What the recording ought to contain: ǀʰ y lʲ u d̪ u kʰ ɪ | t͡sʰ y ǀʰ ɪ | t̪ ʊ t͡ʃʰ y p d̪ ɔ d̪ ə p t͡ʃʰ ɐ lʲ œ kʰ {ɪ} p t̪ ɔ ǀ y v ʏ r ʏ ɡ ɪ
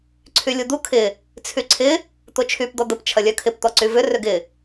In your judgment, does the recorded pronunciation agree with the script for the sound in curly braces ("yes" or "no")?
yes